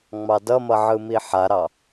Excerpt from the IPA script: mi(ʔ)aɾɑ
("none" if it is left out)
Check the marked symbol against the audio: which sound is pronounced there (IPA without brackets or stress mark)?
ħ